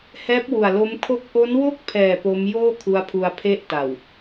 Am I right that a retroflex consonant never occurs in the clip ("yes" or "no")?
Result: yes